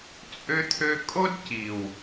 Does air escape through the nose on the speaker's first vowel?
no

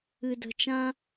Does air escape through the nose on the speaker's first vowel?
no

